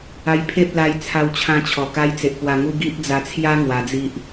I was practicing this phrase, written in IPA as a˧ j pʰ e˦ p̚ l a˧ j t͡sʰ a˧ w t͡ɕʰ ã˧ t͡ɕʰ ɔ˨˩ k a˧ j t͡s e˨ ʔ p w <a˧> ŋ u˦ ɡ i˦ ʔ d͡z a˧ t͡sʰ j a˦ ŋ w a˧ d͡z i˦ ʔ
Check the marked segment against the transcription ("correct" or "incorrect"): correct